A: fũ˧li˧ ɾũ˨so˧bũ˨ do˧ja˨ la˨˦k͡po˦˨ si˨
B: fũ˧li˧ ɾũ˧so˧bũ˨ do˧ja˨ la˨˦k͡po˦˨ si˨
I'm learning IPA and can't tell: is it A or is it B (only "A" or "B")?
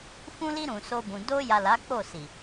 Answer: A